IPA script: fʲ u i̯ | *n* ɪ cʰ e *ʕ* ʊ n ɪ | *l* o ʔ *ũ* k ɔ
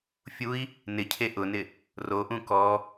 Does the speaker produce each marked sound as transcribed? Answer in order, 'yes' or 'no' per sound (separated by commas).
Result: yes, no, no, yes